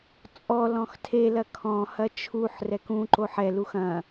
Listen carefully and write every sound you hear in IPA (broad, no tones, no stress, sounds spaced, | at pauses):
t͡sʼ ɔ l ɔ̃ x tʰ e l ɐ kʰ ɔ̃ h ɐ t͡ʃʰ u ħ r ɛ k ũ ǃ o ħ ɛ l u x ɐ̃